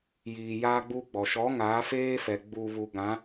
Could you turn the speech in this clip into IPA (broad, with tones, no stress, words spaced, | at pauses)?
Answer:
jiː˨jaː˦ɡ͡bu˦ɡ͡bɔ˨ ʃɔ˨˦ ŋaː˨˦ feː˦fɛ˨ ɡ͡bu˨βu˨ɡã˨˦